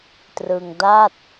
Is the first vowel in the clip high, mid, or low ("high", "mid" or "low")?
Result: high